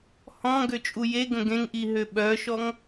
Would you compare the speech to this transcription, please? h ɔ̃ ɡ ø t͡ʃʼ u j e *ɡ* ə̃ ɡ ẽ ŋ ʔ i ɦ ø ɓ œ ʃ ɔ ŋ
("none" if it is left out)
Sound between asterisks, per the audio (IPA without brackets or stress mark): ɡ